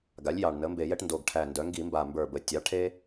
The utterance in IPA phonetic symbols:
ɡa˩˥lʲjɑ˨˩ɳnə˩˥ mbe˧˩˧jɛ˦ʈ ndo˨˩ɡʈʰæ˨˩ ndœ˩˧ŋɡi˧˩˧mba˨˩ mbə˞˨˩bə˩˧ tʲɑ˩˥ʈʰe˦

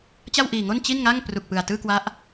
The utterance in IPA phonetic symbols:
t͡ɕa˥˩wʔiː˨˩ŋo˥˩n t͡ɕi˥˩nŋa˥˩ŋ pru˨˩k̚pɯ˨˩a̯ tɯː˥˩kwa˦˥ʔ

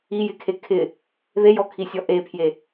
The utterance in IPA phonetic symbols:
ijɪkʰe kʰɪ | ðejɔkʰisʲɔ ʔepʰje

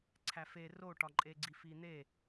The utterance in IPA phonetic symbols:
ǀʰæfe roʈɒǃʼeɡ͡ǀi fin̪e

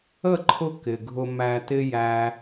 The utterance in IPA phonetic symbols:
ə˦˨ǃʰʊ˧ kɪ˨ɡʱʊ˧ mæ˧tɪ˦jæ˧

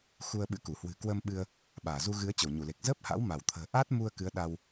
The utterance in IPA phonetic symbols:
xu˧ə̯ɓɨ̰˧˥ku˧˩ hwɨ̤˨˩kwəː˧mɓɨ˧ə̯ | ɓaː˧˩zu˧ɣɨ˨˦ə̯ t͡ɕə˧˩wɲu˧˩le˨˩k̚ zəː˦˥p̚ha̰˧˥w ma˧˩wt̪ʰə̤ː˨˩ʔaː˦˥t̚mu˧ə̯ kɨ˨˦ə̯ɗa˧w

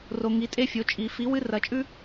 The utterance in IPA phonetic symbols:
ro˨ŋi˩˥tʼe˥fʲo˩˥ t͡ʃʼi˨˩˦ fi˩˥ wɨ˥rɐ˨˩˦t͡ʃʼʉ˥

